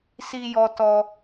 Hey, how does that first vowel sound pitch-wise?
high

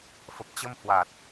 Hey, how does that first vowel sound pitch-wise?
low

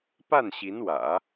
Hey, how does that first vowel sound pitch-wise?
falling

